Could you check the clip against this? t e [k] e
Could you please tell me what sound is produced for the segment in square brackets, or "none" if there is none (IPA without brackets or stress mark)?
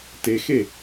x